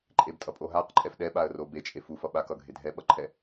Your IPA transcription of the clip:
ǃʼ e b tʼ ʌ pʼ o ɦ a q ǃʼ ɛ f ɗ ɛ ɓ a ə̯ r o b e t͡ʃʼ e f u f ʌ ɓ a k ʌ ɡʱ e dʱ ɛ ɓ ʌ ǃʰ ɛ

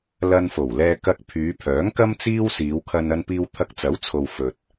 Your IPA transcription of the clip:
l ɐ˧ n f o˨˩ w l ɛː˧ k ɐ˧ k̚ pʰ yː˨˧ pʰ œː˨˥ ŋ k ɐ˥ m t͡s iː˥ w s iː˨˧ w kʰ ɐ˧ n ɐ˧ n p iː˧ w t̪ʰ ɐ˧ k̚ t͡s ɐ˨˥ w t͡sʰ o˨ w f ɵ˨ t̚

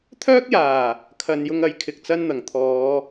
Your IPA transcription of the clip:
t̪ʰ œː˥ k̚ j aː˨˩ | kʰ ɐ˨ n j ʊ˧ ŋ ɐ˨˥ j kʰ ɪ˨ k̚ t͡s ɐ˥ n n̪ ɐ˨˩ ŋ t̪ʰ ɔː˨˧

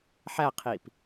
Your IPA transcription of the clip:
ħ æ qʰ i p

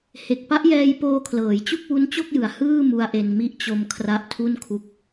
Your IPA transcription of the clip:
h e˨˩ k̚ p a˦˥ ʔ j ɛː˧ j p oː˧ kʰ l ɤː˩˦ j t͡ɕ u˥˩ k̚ w u˦˥ n t͡ɕ o˥˩ k̚ j ɯ˩˦ a̯ h ɯː˥˩ m u˧ a̯ ʔ e˧ n m i˦˥ ʔ t͡ɕ o˧ m kʰ r a˦˥ ʔ tʰ u˥˩ n kʰ u˦˥ k̚

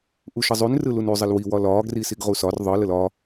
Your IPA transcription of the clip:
ʔ u ʃ ə zˤ y n r ɯ l u n y zˤ ə l w i w ɒ l ɒː ɡ r i s i ɡ ʁ u s ɒ r ðˤ ɯ l ə l ɒ

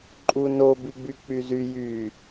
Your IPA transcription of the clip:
ǃʼ u n o b i ɡ͡b y k͡p y z y j y

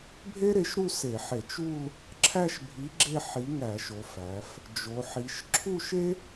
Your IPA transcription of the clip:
bʱ e˥ ɾ e˨˥ ʃ ɾ u˥˧ s e˧˩˧ ħ e˧˩˧ t͡ʃ u˥˧ l | ǁʰ æ˥˧ ʃ bʱ i˨˥ ɡ͡ǁ e˥˧ ħ i˨˥ ŋ æ˧˩˧ ʃ o˩˧ f æ˩˧ f | d͡ʒ o˩˧ ħ i˩˧ ʃ ǁʰ u˥˧ ʃ e˥

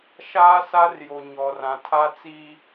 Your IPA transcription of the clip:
ʃ aː˦ s a˦ r j o˨ ɲ ɔ˨ r ã˨ tʰ a˦ t͡s i˦

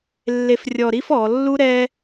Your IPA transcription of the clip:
lː e˥ f rʲ ɔ˥˧ ɾ i˥ f ɔ˩˧ lː u˥ ɾ ɛ˥

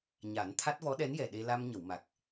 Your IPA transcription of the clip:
ɲ a˨˩˦ n t̪ʰ a˦˥ t̚ v ɔ˧˥ ɗ ɛ˧˥ n j ɛ˨˩ ɗ e˧ l a˧ m ɲ ə˨˩˨ w m a˨˩ k̚

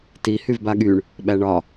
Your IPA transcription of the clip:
t i h y v b a ɠ y ɳ | ɓ æ ɳ ɒ

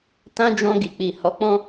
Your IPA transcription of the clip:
t ã˦ d͡ʒ ɔ̃˧ ɡ i˨ k͡p i˨ h ɔ˨˦ k͡p ɔ̃˦

